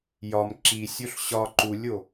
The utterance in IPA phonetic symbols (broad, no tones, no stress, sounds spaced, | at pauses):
j ɒ m ǁ i sʲ o ɬ ɕ ɒ ǃ u lʲ o